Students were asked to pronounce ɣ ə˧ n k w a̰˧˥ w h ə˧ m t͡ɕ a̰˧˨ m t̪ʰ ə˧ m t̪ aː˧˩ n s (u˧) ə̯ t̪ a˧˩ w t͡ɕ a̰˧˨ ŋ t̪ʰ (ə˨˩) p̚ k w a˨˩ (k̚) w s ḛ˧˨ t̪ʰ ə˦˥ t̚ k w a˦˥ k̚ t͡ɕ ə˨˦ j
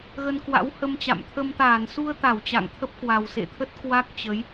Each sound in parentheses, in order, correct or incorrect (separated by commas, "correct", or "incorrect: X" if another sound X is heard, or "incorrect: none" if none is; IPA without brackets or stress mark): correct, incorrect: ə˦˥, incorrect: none